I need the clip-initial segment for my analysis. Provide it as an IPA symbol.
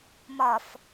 m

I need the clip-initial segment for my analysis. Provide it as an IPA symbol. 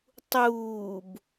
tˤ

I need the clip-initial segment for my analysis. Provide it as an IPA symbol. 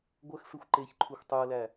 ɡʷ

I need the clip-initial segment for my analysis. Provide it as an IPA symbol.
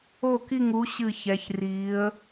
o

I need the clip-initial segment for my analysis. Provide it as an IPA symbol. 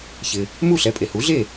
ç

